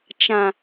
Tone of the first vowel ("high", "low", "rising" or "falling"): low